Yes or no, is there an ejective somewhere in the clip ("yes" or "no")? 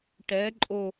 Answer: yes